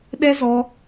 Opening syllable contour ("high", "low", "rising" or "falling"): high